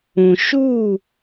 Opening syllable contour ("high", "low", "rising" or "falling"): low